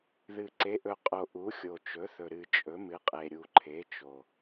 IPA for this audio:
ð ɨ˨˩ ǀ e˩˥ ʔ ɵ˨˩ qʼ o˨˩ ʔ u˩˥ xʲ o˨˩ t͡ʃ ɵ˩˥ θ ɵ˨˩ ɾ ɨ˨˩ t͡ʃʼ ɵ˩˥ m ɨ˩˥ qʼ e˨˩ ɾʲ u˨˩ ǃʰ e˩˥ t͡ʃ o˨˩

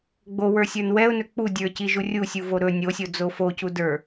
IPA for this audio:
ɡ͡b o w ə˞ sʲ ə˞ n w ɛ ʊ̯ n ɵ k͡p u dʲ ə˞ c i ʒ u rʲ u sʲ u v o ɾ ɵ nʲ o sʲ o d͡z o f o c u d ə˞

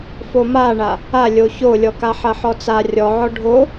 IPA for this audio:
f o m a ɳ a | a lʲ o ç o lʲ ɔ k a ħ ɐ ħ ɔ t͡s a rʲ ɔ ʕ ɔ ɖʱ o

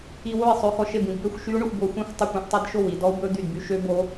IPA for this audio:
i˧ w o˥˩ i̯ sˤ ø˧ x ɔ˧ ʃ e˥˩ b ĩ˧ d b ø˥˩ xʷ ʃ y˦˥ u̯ ɳ ɵ˧ xʷ b o˧ xʷ ĩ˥˩ xʷ tˤ u˥˩ kʷ ĩ˧ ʔ tˤ e˦˥ d ʃ o˥˩ w i˧ d ɔ˦˥ u̯ b ɵ˦˥ d̪ y˥˩ d b y˦˥ ʃ ø˦˥ b o˦˥

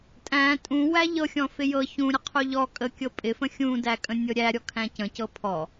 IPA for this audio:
tʼ æ̃ tʼ ũ w æ ʎ ɤ xʲ ɔ̃ f ɪ j ɤ ç ũ ɾʲ ə qʰ u ʎ ɔ kʼ ə kʲ ɤ pʼ ɪ f ə̃ xʲ ũ d æ kʼ ə̃ nʲ ɤ ɾʲ æ ɾʲ ɔ kʰ æ̃ c ə̃ c ɤ pʰ ɔ

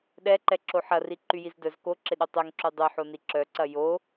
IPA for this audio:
ɗ ɛ ǃ ɛ ǁ o ħ ɐ r i ǃ y j i z d œ z k o ǁ ɪ ɗ ø tˤ ɛ ŋ ǁ y dˤ y ħ o n i ǁ œ ǀ ɐ j o

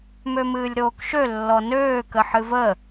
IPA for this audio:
m ø m ɨː lʲ ɾ oː k ʃ ø lː ɔ n øː k ə ħ ɨ v ə

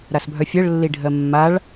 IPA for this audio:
ɾ a s bʱ œ fʲ ɜ ɭ lː i ɖʱ ɜ mː a ɭ

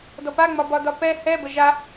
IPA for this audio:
d ɔ p a ŋ͡m ɒ b ɒ d ɒ p ɛ h ɛ b ə ʒ a

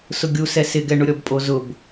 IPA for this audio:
s ʊ ɡʲ u s ɛ s ɪ ɡ ɛ ɳ ʊ ɾʲ ɔ b pʼ o z ʊ b

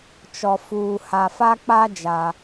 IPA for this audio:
t͡ʃ ɔ˨ f uː˨ h a˨ f a˦ k͡p a˦ d͡ʒ a˦

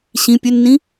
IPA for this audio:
ɕ ĩ pʲ ø nː ĩ

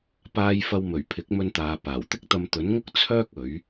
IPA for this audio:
p aː˧ j f ɐ˧ w m ɵ˨˩ ɥ pʰ ɪ˨˥ k̚ m ɵ˧ n t̪ aː˨ p aː˨˩ w t̪ ɪ˥ k̚ t̪ ɐ˧ m t̪ ɵ˨˥ n ŋ ʊ˥ k̚ t͡sʰ œː˥ k̚ ɵ˨˥ ɥ

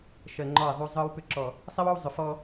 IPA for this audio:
ʃ ɜ˨ ŋ͡ǃ ɔ˦˨ i̯ ðˤ u˦ zˤ ɯ˦ w p ʏ˦ ǁ ɔ˨ | sˤ i˦ w ɔ˦ w zˤ ʏ˨ f ɔ˦

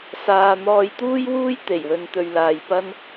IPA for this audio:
s aː˨ n̪ ɔː˧ j t̪ uː˥ j w uː˥ j t̪ e˨˩ j w ɵ˨ n t̪ ɵ˨ ɥ l aː˨ j p ɐ˥ n

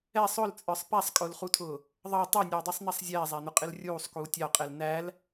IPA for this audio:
ɛ sˤ ʊ l t͡sʼ ə˞ sˤ p æ sˤ kʼ ʊː l χ u tʰ ʊː | ðˤ ɑ tˤ ɛ nʲ ʌː dˤ i sˤ n̪ ɛ sˤ zʲ ɛː zˤ æ n̪ ʊ qʼ ɪ l rʲ uː sˤ k uː tʲ ɑ qʼ ɛ l n æ l

